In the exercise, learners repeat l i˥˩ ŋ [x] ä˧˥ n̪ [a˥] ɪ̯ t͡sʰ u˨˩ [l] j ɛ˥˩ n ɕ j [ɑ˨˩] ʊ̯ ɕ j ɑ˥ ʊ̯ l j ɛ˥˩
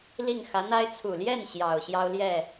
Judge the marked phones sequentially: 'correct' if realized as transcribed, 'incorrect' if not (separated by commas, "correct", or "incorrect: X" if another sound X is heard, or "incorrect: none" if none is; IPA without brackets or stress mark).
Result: correct, correct, correct, correct